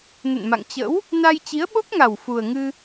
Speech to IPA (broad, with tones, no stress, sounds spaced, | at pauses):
n ə̰˧˨ n m a̰˧˨ ŋ t͡ɕ ə̰˧˥ w | n a˧ j t͡ɕ i˨˦ ə̯ ɓ o˦˥ k̚ ŋ a˨˩ w f u˨˩ ə̯ ŋ ɨ˧